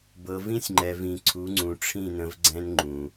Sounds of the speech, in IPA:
b ɤ˨ v ĩ˦ sʲ ŋ͡ǃ ɛ˨ v ĩ˨ ǀʰ u˨˦ ŋ͡ǀ ũ˨ ʈ͡ʂʰ ĩ˦˨ n ə̃˧ v ɡ͡ǀ ɛ̃˦ n ŋ͡ǃ ũ˨

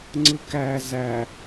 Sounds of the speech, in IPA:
ŋ͡ǀ ɯ k æ z æ

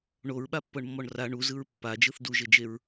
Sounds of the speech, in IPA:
ɳ o ɹ ɓ a pː ɤ ɳ mː ɔ ɳ r a ɳ u z ɯ ɹ pː a d͡ʒ ɯ θ d u ʒ e d͡ʒ e ɹ

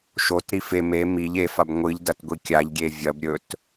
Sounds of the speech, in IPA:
ʃ o t ɾ i f e m e m i ʎ e f a b ŋʷ ɨ ʎ d ɐ t ɡʷ i kʲ a ʎ ɡʲ e vʲ ɐ b ɾʲ ɵ t

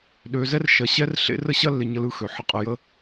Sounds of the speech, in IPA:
ɗ ø˨ z ɛ˦ r ʃ ɐ˨ ɕ ɛ˦ r ɬ ḛ˦ r ə˦ ɕ ɐ˦ lː ɪ˦ ɲ ə˦ l ɯ˦ x ø˨ ħ ɪ˨ qʼ ɪ˨ j ə˦

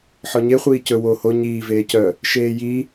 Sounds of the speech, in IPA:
ħ ɔ ɲ e χʷ iː c ɵ w o h o ɲ iː v eː c œ | ʃ eː j i

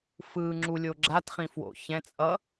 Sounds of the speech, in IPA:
f ɯ ŋ͡ǁ u lʲ o ɡ͡ǁ a t χ ĩ f w o̰ ç ɛ̃ t͡sʼ ʌ

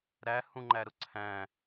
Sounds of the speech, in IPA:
ɾ æ h ũ ŋ͡ǃ æ ɾ ʊ ǀʰ æ̃

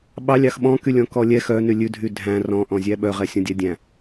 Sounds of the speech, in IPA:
ɓ ɑ lʲ ɑ x ɓ ɔ̃ k y lʲ ɔ̃ k ɔ lʲ ɛ x œ n y lʲ ʉ dʱ y dʱ æ̃ r ɔ̃ ʔ ɔ̃ zʲ æ ɓ œ ʁ ɛ sʲ ɔ̃ dʲ æ dʲ æ̃

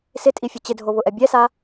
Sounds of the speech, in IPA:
s ɪ tʼ i fʲ ʊ t͡ɕ ɪ dʱ o β ʊ ʔ ɛ bʲ ɛ s a

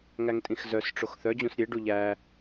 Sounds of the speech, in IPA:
ŋ æ ŋ tʼ ĩ x z œ s ʈ͡ʂ o x θ œ d͡ʑ ũ s ɾʲ e ɖ u ʎ æ

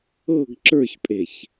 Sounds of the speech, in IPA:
ɤ ɡ ǁ ə˞ ç pʼ e ç

